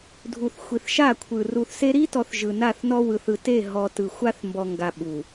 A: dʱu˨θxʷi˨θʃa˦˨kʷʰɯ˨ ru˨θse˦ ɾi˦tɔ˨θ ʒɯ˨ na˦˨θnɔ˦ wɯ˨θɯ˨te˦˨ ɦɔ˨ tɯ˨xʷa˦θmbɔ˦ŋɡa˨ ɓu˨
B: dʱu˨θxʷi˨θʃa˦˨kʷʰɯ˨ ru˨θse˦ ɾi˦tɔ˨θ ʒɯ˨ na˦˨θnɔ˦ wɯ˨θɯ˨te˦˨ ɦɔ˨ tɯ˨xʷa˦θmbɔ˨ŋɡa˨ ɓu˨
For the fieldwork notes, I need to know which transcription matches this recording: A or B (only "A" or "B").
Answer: B